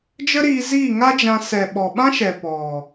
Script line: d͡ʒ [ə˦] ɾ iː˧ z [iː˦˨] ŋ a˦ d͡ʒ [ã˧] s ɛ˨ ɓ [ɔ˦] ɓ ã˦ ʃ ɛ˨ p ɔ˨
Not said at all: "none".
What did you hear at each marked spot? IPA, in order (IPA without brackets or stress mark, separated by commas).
ə˦, iː˦˨, ã˧, ɔ˨